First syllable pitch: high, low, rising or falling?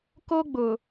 high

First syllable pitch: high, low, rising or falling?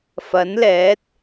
rising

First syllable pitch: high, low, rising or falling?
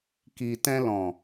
low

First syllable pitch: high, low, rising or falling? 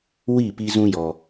falling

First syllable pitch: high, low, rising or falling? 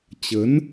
rising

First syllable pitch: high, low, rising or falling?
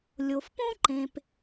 low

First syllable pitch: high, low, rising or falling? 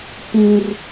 high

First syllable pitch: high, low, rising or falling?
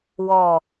falling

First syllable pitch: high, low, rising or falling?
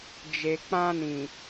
low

